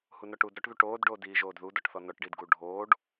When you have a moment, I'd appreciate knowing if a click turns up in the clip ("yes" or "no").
no